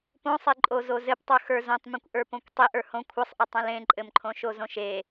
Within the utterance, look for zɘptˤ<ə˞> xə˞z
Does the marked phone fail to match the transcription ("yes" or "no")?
no